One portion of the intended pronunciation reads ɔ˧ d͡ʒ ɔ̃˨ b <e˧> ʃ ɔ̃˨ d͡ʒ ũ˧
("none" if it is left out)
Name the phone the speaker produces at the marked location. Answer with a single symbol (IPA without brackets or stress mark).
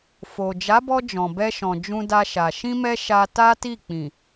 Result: ɛ˧